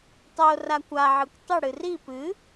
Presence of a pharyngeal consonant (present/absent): present